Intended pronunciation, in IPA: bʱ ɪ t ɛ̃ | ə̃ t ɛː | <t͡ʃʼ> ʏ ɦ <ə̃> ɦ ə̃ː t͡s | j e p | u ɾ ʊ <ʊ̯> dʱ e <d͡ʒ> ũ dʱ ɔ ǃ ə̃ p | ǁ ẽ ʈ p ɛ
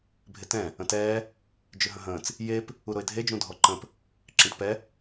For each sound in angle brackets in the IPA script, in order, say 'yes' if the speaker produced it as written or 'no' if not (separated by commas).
no, yes, no, yes